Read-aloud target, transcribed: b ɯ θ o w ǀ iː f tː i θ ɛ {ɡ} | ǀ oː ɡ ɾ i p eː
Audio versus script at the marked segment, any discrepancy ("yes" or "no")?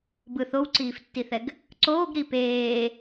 no